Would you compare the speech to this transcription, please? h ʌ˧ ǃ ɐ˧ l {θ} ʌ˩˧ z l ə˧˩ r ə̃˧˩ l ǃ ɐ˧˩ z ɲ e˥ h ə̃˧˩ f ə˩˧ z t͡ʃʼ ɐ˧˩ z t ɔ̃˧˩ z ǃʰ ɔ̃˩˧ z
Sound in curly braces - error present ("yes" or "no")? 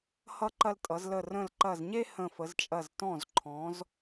yes